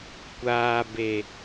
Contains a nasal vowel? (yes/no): no